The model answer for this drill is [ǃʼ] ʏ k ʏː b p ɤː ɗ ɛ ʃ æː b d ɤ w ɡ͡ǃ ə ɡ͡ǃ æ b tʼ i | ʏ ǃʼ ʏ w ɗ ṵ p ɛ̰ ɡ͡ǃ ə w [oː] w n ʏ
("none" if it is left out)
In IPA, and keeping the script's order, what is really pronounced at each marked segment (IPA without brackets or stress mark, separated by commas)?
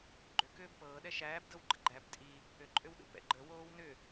ɡ͡ǃ, oː